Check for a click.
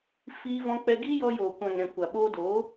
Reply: absent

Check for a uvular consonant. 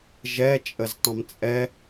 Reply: absent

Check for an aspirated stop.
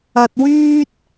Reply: absent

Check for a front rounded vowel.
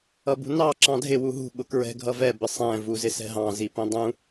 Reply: absent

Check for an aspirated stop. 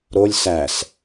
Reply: absent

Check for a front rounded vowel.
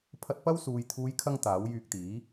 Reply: present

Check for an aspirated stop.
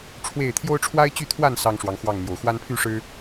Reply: present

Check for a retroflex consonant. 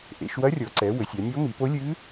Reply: absent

